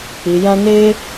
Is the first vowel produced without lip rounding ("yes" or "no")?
yes